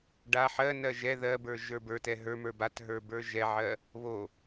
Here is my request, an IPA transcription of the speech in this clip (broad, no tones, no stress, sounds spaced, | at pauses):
ɖ a ħ ɜ n ɜ ʒ ɛ ð ɜ b ə˞ ʒ ə˞ b ə˞ t ɛ ɦ ə˞ m ə˞ b a t ɦ ə˞ b ə˞ ʒ ɛ ʕ ɜ | β o